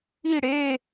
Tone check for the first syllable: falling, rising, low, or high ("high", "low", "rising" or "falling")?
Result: falling